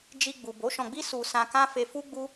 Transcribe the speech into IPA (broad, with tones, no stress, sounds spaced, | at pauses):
d͡ʒ i˧ ɡ͡b u˨ b o˨˦ ʃ ɔ̃˧ ɡ͡b i˦ s u˧ s ã˧ k ã˦ f e˧ f u˦ ɡ͡b u˦